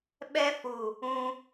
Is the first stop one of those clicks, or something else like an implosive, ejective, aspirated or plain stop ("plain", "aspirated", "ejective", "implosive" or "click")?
implosive